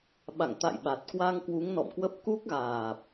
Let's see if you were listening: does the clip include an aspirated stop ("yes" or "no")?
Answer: no